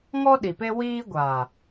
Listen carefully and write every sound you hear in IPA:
ŋ ɔ˦ ɗ i˨ p e˦ w iː˦ ɡʷ aː˨

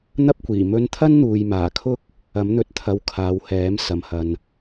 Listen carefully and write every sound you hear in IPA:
n̪ ɐ˥ p̚ kʷ iː˨˩ m ɵ˧ n t̪ʰ ɐ˥ n n̪ uː˨ j m aː˨˩ kʰ ʊ˥ k̚ | ɐ˨˥ m n̪ ɵ˨˥ t̚ t̪ʰ ɐ˨˧ w kʰ aː˨ w h ɛː˨˥ m s ɐ˨ m h ɐ˨ n

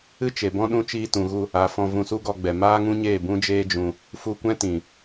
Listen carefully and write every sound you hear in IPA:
ɨ˦ t͡ʃ e˨ b ɔ̃˦ ɗ ũ˦ t͡ʃ iː˧ t ũ˨ ɣ u˧ | a˨˦ f ɔ̃˧ v ũ˧ s u˦ ɡ ɔ˧ ɡ͡b ɛ˨ m aː˦ ŋ ũ˦ ɲ eː˦˨ b ũ˦ d͡ʒ eː˦ d͡ʒ ũ˧ | f u˧ kʷ ɛ̃˦ t ĩ˨

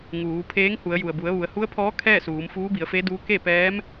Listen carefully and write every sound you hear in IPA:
ŋ uː˩˧ pʰ eː˧˥ ŋ h u˩˧ ə̯ j u˩ ə̯ b u˩˧ ə̯ ʋ u˩˧ ə̯ h u˧˥ ə̯ pʰ ɔː˧˥ kʰ ɛː˥˨ s uː˩˧ m f uː˧˥ b i˩˧ ə̯ f e˧˥ d uː˧˥ k e˥˨ p ɛː˧˥ m

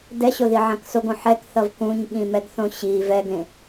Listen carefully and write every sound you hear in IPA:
d ɛ ɕ o ð i ʕ ã k s o ɡ õ ħ ɛ k θ ʌ v k ũ ɲ ɠ ĩ m ɛ ɡ θ õ ɕ i v ɛ ɡ ẽ

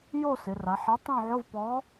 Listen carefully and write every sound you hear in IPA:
j o˥˨ s ɪ˩˧ r a˩˧ ħ ɛ˨˥ tˤ õ˥˨ ʕ ʊ˧˥˧ v p ɔ˨˥

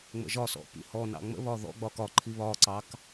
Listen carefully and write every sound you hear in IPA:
ŋ͡m ə̰ ʒ ɒ s ɔ̰ p ḭ h ɔ n ɑ̰ ŋ͡m ə̰ β ɒ ð ɔ̰ ɡ͡b ɒ k ɒ ǃʰ i β ɒ ǀ ɑ k

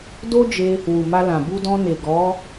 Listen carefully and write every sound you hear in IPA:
d o˦ d͡ʒ e˧ | w u˨ m a˧ l ã˨ b u˧ d ɔ̃˧ n e˨ ɡ ɔ˨˦

